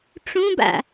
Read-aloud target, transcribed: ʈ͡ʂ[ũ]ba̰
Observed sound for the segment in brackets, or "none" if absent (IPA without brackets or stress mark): ũ